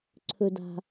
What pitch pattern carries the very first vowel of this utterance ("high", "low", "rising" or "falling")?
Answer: low